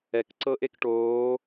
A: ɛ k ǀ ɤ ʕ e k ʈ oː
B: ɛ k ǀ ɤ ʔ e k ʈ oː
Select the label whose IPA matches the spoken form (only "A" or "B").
B